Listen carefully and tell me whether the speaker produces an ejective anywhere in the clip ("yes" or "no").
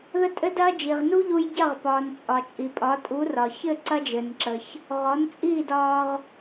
yes